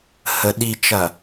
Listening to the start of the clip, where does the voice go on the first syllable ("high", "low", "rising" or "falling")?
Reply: low